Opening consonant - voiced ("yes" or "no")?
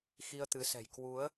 no